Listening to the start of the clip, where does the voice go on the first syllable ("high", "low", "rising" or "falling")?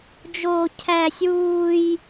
high